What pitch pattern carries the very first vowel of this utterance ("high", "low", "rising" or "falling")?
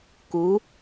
rising